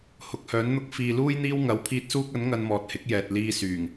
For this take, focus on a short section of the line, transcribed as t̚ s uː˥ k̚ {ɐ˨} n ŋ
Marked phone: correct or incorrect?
incorrect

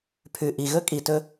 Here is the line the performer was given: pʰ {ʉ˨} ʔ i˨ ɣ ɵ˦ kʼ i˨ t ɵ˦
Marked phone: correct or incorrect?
correct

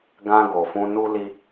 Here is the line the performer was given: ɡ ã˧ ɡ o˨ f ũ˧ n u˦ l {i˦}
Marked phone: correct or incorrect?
correct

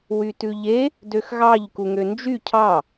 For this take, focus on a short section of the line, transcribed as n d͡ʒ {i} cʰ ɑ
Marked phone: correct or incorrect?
incorrect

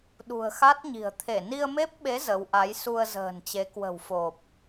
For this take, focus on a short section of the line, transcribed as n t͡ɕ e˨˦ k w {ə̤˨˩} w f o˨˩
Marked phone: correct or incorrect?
correct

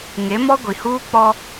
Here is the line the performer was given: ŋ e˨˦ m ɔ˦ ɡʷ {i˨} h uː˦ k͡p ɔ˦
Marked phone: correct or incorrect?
correct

